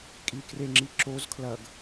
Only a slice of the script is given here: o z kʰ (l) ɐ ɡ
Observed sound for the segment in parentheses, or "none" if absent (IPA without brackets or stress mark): l